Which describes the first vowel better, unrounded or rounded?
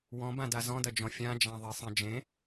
rounded